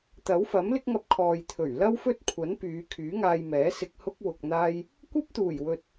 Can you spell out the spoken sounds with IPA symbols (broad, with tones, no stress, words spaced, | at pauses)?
t̪ɐ˨˥wfɐ˨˥mlɪ˥k̚ŋɐ˧p̚ kʰɔː˨jt̪ʰɵ˨˩ɥ lɐ˥wfɵ˥t̚kʷʰɐ˨˥npyː˨˧ kʰyː˨˥ŋaː˧jmɛː˨˥ sɪ˧k̚hʊ˥k̚ wʊ˧k̚n̪aː˥j | kʷɐ˥p̚t̪uː˨˩jwɵ˨t̚